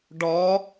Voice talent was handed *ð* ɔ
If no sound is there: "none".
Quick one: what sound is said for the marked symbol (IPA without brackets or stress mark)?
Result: ɖ